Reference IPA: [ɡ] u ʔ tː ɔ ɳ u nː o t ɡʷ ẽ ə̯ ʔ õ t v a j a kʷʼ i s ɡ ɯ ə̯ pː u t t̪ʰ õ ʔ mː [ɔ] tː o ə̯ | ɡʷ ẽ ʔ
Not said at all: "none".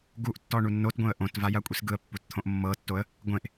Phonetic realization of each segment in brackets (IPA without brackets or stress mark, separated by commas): ɡ, ɤ